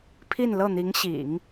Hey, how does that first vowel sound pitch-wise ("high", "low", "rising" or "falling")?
falling